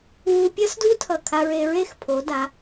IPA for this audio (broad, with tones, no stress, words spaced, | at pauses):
wu˧ pʲʌ˥sdu˥tʰʌ˧˩ kʰa˧ ɹe˧ɹe˥˧x pʰo˩˧da˩˧